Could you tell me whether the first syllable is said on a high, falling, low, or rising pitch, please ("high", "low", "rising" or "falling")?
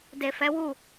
low